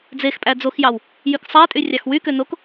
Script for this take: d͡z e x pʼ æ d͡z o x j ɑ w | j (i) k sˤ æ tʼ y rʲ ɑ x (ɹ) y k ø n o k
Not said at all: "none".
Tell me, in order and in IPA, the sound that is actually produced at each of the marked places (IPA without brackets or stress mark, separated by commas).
y, w